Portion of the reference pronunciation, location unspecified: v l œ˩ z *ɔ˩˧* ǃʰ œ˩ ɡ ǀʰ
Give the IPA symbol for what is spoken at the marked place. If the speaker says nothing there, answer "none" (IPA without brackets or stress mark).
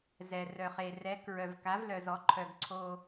ɔ˩˧